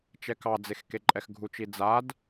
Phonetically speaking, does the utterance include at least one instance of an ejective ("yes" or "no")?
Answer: yes